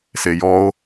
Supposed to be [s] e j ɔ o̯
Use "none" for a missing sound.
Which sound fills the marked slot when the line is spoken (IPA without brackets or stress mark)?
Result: s